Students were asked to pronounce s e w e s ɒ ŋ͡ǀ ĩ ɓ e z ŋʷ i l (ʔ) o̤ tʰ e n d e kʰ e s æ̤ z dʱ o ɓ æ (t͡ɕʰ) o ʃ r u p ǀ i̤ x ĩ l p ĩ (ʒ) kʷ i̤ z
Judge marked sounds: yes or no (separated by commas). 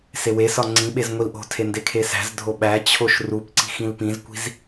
yes, yes, no